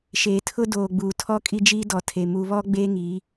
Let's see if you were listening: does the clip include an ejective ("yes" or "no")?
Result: yes